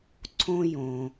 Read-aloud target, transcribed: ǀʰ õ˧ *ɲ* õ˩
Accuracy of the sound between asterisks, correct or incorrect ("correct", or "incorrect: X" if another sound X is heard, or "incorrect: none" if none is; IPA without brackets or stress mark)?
incorrect: j